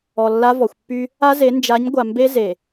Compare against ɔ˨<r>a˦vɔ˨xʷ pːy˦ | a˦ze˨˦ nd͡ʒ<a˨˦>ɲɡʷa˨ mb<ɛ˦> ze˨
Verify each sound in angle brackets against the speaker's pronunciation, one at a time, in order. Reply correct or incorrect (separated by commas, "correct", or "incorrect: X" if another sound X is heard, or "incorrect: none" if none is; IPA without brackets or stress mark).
incorrect: lː, correct, incorrect: e˦